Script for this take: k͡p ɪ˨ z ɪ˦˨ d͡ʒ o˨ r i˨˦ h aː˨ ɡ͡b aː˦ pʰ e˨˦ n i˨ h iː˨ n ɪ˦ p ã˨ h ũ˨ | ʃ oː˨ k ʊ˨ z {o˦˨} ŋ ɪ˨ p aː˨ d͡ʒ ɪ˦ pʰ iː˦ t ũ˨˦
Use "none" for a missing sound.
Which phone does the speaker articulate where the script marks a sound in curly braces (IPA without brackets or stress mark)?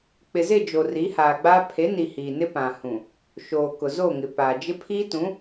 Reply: o˦˨